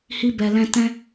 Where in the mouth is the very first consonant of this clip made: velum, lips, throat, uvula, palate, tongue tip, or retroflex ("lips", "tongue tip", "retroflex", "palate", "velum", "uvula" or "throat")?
throat